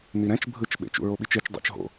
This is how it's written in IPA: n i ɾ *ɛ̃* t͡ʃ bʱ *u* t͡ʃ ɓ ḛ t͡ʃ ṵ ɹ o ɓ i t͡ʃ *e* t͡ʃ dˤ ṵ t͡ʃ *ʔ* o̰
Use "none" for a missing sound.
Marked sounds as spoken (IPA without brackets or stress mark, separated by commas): ɛ̃, ɯ, e, ɦ